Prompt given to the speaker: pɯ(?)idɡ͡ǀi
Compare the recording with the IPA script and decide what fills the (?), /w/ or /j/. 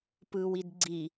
w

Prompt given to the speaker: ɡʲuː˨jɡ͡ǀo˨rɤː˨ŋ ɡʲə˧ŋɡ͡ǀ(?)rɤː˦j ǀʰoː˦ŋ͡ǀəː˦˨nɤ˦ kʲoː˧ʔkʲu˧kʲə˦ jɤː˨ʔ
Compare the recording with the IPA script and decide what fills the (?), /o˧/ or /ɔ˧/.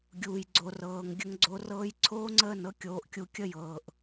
o˧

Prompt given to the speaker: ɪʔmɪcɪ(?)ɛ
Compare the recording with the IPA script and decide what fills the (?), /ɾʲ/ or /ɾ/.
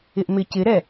ɾ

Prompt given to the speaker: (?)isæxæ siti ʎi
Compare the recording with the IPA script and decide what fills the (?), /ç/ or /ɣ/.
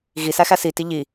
ɣ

